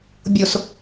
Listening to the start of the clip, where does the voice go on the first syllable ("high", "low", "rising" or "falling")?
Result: low